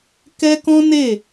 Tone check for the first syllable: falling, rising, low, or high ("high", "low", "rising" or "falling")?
high